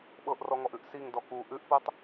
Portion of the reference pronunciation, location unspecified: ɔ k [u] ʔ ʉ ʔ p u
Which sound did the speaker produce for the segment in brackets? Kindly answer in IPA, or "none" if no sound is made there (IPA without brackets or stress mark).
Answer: u